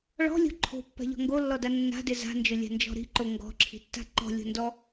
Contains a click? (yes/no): yes